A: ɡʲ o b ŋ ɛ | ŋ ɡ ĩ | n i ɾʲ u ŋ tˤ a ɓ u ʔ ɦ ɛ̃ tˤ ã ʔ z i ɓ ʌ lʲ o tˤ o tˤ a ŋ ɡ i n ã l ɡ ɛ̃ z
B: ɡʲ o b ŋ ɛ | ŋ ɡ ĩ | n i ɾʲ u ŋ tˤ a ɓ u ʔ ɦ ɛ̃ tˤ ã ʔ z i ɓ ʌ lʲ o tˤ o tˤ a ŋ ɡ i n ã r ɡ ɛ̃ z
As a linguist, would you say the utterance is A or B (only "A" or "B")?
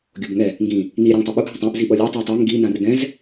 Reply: B